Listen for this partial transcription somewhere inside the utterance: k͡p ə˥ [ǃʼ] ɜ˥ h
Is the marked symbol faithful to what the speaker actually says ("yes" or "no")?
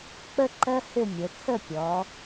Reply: no